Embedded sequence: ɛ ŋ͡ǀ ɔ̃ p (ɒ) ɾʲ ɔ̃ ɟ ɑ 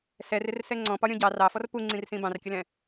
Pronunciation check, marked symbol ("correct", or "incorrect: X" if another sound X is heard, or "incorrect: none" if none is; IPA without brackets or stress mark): correct